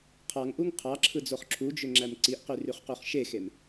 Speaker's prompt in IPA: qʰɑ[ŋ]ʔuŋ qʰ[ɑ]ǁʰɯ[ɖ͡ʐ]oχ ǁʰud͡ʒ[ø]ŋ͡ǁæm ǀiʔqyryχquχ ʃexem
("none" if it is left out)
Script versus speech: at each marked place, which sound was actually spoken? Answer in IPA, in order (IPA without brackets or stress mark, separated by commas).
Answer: ŋ, ɑ, d͡z, ø